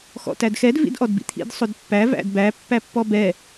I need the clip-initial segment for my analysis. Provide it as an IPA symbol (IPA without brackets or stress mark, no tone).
x